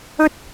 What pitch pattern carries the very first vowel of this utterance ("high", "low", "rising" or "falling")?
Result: high